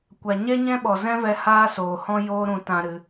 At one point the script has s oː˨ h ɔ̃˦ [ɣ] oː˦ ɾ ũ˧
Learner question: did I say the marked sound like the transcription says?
no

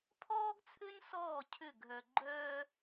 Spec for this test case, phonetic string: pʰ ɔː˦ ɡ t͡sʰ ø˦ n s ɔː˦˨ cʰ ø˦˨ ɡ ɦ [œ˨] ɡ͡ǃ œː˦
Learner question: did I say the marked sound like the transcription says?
yes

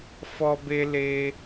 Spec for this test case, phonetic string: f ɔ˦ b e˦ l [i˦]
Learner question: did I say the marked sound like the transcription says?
no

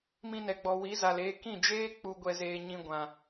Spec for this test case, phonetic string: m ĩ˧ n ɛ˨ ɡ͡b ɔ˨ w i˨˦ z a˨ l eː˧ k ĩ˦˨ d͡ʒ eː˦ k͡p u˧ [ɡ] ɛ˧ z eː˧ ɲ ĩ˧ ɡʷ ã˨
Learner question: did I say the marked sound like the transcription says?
no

